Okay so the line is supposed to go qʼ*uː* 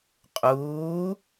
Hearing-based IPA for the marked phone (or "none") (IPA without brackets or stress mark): uː